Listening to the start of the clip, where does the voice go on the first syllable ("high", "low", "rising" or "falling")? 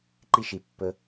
high